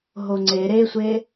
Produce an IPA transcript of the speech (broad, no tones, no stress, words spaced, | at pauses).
ɦoŋ͡ǀe ɾesʷe